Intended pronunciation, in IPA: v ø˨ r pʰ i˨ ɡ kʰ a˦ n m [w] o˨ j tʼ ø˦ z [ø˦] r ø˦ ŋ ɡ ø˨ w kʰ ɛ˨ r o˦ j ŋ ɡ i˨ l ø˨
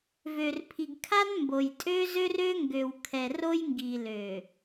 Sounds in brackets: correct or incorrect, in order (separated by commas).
incorrect, correct